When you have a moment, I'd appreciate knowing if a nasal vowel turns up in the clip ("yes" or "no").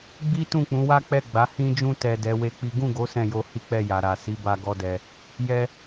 yes